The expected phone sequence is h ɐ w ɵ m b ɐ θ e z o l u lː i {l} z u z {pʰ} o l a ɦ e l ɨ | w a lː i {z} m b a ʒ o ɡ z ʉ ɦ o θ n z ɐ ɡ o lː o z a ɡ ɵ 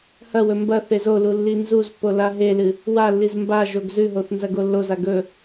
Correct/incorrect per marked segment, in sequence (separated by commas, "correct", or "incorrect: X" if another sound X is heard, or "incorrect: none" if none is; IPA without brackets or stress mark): incorrect: n, incorrect: pː, correct